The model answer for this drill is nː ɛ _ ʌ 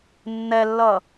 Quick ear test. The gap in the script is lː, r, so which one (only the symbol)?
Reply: lː